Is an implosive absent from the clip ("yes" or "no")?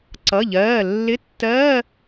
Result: yes